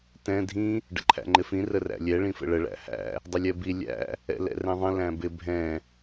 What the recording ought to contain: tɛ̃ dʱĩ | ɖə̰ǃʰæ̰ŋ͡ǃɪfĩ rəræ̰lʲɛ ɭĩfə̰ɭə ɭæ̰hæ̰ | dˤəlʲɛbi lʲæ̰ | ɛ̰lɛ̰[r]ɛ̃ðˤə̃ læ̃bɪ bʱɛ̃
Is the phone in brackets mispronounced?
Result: no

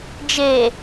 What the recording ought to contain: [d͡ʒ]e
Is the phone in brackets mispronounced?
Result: no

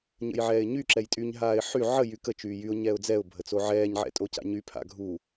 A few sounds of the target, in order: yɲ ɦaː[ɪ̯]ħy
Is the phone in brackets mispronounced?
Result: no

